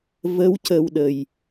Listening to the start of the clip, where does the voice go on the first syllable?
rising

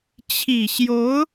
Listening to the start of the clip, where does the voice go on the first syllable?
low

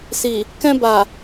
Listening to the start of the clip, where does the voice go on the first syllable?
low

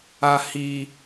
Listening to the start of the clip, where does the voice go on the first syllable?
high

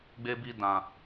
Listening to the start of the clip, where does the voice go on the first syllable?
high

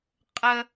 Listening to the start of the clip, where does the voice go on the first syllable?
high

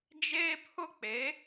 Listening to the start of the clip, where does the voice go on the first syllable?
high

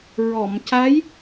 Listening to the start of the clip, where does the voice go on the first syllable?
low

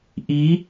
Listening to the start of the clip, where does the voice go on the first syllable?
rising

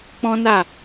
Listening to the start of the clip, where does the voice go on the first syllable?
high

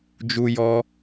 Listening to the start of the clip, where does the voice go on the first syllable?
high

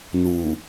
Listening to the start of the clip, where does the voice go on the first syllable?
low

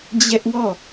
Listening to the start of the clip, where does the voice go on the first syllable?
high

